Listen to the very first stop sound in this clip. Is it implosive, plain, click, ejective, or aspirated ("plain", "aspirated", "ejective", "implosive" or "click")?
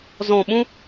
implosive